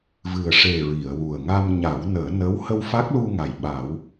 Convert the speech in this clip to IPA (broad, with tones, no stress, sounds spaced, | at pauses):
v ɨ˨˩ ə̯ ʂ e˨˩ ɹ i˨˩˨ ə̯ w u˨˩ ə̯ ŋ a˧ m ɲ a˨˩˦ w n əː˨˩˦ n ə˧˥ w h ə˧ w f a˦˥ k̚ l u˧ ŋ a˨˩ j ɓ a˨˩˦ w